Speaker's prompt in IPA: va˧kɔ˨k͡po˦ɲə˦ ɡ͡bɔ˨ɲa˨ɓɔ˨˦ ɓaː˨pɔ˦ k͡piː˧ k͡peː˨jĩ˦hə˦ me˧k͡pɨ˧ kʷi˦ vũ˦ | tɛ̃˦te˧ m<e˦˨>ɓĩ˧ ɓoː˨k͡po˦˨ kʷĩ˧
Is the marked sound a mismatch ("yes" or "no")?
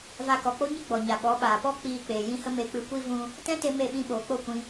no